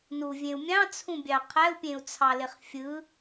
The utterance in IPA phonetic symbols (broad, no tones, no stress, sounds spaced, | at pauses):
n u vʲ ẽ u̯ mʲ ɑ̃ t͡sʰ ũ bʲ ɑ qʰ æ u̯ pʲ ẽ u̯ t͡sʰ ɑ l e χ fʲ ɯ